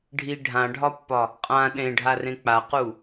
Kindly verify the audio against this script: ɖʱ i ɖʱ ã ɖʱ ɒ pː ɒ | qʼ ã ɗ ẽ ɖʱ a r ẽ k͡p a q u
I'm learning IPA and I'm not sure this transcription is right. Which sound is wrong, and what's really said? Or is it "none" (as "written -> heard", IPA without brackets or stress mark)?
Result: none